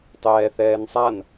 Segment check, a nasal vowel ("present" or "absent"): absent